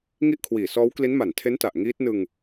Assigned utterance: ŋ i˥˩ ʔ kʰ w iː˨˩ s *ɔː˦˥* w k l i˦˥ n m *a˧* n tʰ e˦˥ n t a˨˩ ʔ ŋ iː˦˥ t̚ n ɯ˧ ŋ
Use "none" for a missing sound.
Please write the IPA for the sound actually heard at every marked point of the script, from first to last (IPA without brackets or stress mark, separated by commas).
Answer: ɔː˦˥, a˨˩